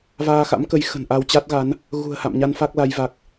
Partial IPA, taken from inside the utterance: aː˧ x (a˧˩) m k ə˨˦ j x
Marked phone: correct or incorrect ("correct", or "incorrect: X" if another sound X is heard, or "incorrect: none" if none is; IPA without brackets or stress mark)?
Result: incorrect: a̰˧˥